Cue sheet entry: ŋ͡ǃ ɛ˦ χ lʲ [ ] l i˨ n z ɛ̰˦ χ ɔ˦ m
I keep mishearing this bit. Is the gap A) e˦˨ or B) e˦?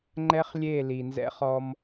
A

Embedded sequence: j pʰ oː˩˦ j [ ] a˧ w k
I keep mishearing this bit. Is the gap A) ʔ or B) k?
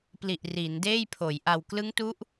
A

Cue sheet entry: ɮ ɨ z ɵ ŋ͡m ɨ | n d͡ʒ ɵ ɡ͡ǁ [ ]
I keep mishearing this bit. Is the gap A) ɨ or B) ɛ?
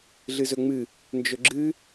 A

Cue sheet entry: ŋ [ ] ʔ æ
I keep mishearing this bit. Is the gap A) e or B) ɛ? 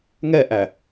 B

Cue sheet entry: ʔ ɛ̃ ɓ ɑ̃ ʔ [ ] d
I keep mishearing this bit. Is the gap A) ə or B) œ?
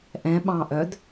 B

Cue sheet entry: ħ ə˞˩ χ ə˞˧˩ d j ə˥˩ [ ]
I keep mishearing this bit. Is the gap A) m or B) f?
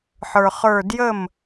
A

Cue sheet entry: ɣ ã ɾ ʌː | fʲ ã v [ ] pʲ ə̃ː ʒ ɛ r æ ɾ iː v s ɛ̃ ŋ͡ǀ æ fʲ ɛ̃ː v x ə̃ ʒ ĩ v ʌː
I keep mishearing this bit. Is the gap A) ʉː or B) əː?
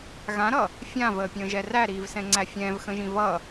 B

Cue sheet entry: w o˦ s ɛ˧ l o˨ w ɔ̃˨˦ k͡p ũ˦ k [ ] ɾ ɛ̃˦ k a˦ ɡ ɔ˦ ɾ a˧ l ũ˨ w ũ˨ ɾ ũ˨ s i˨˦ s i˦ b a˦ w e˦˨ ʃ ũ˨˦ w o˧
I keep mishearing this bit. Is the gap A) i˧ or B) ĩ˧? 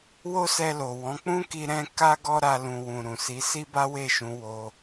A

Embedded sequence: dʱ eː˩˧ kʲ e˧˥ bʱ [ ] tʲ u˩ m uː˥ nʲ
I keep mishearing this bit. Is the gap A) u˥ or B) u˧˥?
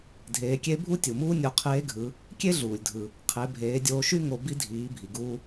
A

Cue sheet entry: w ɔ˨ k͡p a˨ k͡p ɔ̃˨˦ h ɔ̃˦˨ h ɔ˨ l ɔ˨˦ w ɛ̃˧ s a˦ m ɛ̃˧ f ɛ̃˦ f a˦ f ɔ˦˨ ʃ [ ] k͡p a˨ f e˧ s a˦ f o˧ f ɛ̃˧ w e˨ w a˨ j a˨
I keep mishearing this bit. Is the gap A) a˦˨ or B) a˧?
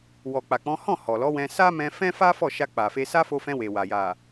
B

